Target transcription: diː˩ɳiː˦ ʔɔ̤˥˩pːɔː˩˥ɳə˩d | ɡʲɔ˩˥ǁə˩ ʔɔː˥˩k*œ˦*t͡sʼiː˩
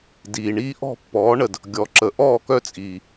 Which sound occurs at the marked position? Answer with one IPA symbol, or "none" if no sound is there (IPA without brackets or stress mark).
œ˦